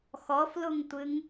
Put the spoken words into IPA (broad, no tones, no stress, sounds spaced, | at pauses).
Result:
x ɔ f l u ŋ tʷ ɨ ŋ